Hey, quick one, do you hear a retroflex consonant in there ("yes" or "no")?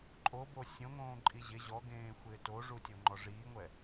yes